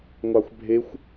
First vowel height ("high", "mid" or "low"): low